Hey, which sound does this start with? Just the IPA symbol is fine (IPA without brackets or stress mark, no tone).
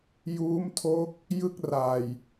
j